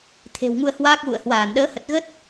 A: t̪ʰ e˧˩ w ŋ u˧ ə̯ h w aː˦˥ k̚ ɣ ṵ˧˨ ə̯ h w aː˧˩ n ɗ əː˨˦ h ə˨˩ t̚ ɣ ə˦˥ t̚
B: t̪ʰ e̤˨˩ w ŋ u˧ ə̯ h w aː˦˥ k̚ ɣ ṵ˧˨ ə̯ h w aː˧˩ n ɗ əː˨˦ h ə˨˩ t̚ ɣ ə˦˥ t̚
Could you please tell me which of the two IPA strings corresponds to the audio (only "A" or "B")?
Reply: B